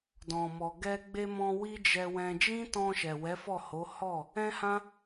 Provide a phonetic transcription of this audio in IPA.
dɔ̃˨mɔ˨ ɡɛ˧ɡ͡be˧mɔ̃˧ wi˦d͡ʒɛ˧wɛ̃˧ d͡ʒĩ˦tɔ̃˧ ʃɛ˨wɛ˨˦fɔ˦˨ho˨˦ hɔ˦˨ | ɛ̃˦hã˦

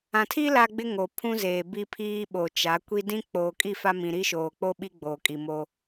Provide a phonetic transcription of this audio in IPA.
ã˨tʰi˦ la˦ɡ͡bɪ˦ ŋo˨pʰũ˦zeː˨ bi˦pʰiː˦ɓo˨t͡ʃa˨˦ kʷi˦ dĩ˦ k͡poː˨kʼi˦˨fa˦ mĩ˨ɾi˦ʃoː˨ k͡po˦ɓi˦ ɡ͡boː˨kʼi˨mo˦

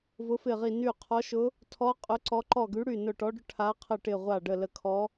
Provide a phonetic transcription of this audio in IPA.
vʊ˧˥fɪ˦˨ʁi˦˨ ny˦˨qʰɔ˧˥ʃʊ˧˥ | tʰɔ˧˥ qʼʊ˧˥ǀɔ˧˥ ǃɔ˦˨ɡy˧˥ɽy˦˨ nʊ˦˨ʈɔ˧˥ɖʊ˧˥ ʈʰa˧˥qʰə˦˨ʈɪ˦˨ ʁʷa˦˨ɖə˦˨ lə˦˨kʰɔ˧˥

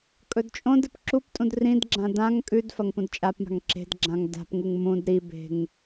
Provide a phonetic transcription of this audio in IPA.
kʼɵdt͡ʃʼõdɨp ǁuptʼũd rĩdɡ͡ǁã dãŋ kʼʉdfɐŋ pũdt͡ʃʼapma̤ŋ ǁe̤dɡ͡ǁãŋ da̤pŋuŋ mũd ɾibe̤ŋ

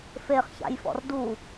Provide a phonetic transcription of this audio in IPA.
feχ ça̰jfɔ̰r du

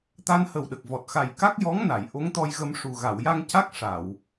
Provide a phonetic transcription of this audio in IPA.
t̪a˧nhə˨˩wɗə˨˩k̚vɔ˨˩t̚ xa˨˩jka˦˥k̚jɔ˧˥ŋna˨˩˨j ʔo˧˥ŋt̪ɔ˧jɣə˧mʂu˨˩ ɣa˨˩˨wja˧ŋca˦˥k̚ ʂa˨˩˨w

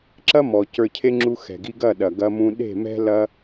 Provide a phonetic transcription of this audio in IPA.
ǁɐ˦ mɔ˨ cə˞˧cʰe˦ŋ͡ǁu˧ xɛ̤˨ɡi˧ɡɐ˦˨ ɗɐ˨ɡɐ˧mũ˧ ɗe̤˦˨mɛ̤˦ lɐ˧

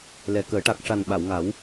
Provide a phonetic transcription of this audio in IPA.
lɛ˨˩kəː˨˩˦ ʈa˨˩k̚ ʂa˨˩n ɓa˨˩˨wŋa˨˩˦w

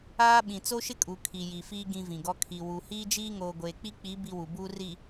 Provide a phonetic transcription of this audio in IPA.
aː˦ɓĩ˨ t͡so˦ʃɪ˦kʼu˨ kʰi˨ji˨fiː˦ ɡĩ˦vĩ˨ɡɔ˦ kʰi˨wu˨ hiː˦d͡ʒiː˦ŋoː˨ ɡʷeː˨k͡pi˦k͡pi˨˦ bi˦wu˨buː˦ ri˨

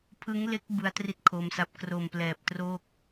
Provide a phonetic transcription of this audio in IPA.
pʰɯ˦˥ŋle˦˥k̚ bɯ˦˥a̯tri˦˥t̚ kʰo˦˥msa˦˥p̚ kro˨˩mplɛː˨˩p̚troː˥˩k̚

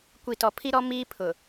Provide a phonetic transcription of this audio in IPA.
kʷi˨tɔ˨pʰi˦ɾɔ˦ miː˦pʰʊ˨

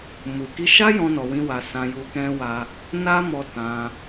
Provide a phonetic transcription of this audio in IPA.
mu˨ki˧ʃa˦ jɔ̃˦nɔ˧wĩ˦wa˧ sã˧ju˧ kɛ̃˦wa˦ | na˦mɔ˧ tã˧

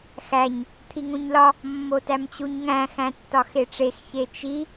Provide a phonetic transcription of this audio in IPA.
xæɲ | t̪ʰiŋũɲlɒ | mːotæmt͡ɕuɲŋæ̃ xæ̃tːɒxeʈ͡ʂex çet͡ʃi

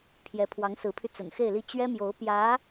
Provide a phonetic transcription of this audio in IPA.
pʰjɛ˧˥pʰwɑ˧˥ŋsɹ̩˧˥pʰy˧ t͡sə̰˨˩nxe˥˧ɪ̯li˥˩ t͡ɕɥɛ˥mjo˧˥ʊ̯pjä˧˥

